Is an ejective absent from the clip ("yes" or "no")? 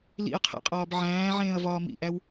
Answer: no